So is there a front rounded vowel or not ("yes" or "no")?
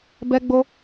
no